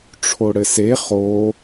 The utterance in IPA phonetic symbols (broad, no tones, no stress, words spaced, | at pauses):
ʈ͡ʂʰoɽɘse χo